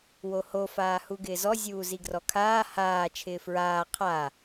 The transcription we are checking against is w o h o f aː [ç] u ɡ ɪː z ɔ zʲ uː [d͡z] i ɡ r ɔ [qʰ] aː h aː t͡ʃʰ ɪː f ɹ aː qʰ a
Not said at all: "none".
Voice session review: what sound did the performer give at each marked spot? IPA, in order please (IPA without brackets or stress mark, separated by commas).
h, z, kʰ